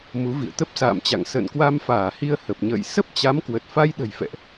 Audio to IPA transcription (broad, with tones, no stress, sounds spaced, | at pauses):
m u˨˦ v ḭ˧˨ ə̯ t̪ ə˦˥ p̚ s a̰ː˧˨ m t͡ɕ a̰˧˨ ŋ s ə̰ː˧˨ n k w a˧ m f aː˧˩ h i˧ ə̯ h ə˨˩ p̚ ɲ ə̰ː˧˨ j s ə˦˥ p̚ t͡ɕ a˨˦ m k w ə˨˩ t̚ f a˧ j ɗ ə̤˨˩ j f ɛ̰˧˨ ʔ